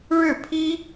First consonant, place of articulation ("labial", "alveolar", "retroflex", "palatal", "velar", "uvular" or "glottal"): retroflex